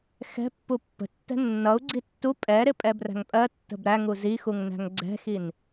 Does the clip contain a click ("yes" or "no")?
yes